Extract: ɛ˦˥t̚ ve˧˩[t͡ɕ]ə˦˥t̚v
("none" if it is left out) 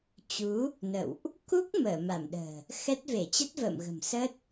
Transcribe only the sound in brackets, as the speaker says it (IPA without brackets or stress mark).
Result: t͡ɕ